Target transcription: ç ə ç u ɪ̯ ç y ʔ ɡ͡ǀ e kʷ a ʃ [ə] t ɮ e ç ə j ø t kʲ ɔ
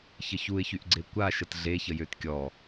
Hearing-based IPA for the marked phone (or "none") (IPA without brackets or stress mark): ə